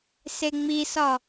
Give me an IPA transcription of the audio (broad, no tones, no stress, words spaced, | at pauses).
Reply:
seŋ͡misɒ